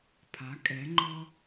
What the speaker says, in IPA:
pʰa˩˧ kʼɛ˩˧ŋ͡ǃɔ˧

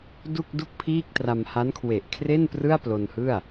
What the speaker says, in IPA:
du˥˩k̚du˥˩k̚pʰiː˥˩k̚tra˧m ha˦˥nkʰwe˨˩ʔ kʰre˥˩n prɯ˥˩a̯plo˧nhɯ˥˩a̯

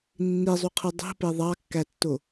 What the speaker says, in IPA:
nːizˤuqʰɯ dˤi̤pe ðˤɑkːætːo

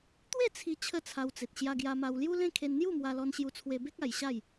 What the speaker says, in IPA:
t̪we˥˧t͡sʰi˧ t͡ɕʰə˥˧t͡sʰa˧wt͡se˨t̚ ɕja˧ɡja˧ma˧w lju˦lẽ˥˧ kʰe˧nn̪ju˥˧mwa˧lɔ˧n ɕju˧t͡sʰwe˧be˦k̚ a˧jɕa˥˧j

